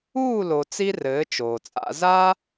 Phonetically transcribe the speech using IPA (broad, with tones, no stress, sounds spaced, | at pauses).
uː˦˨ l o˨ t͡s i˦ r ɘː˨˦ t͡ʃ oː˨ t͡sʼ a̰˧ z a˦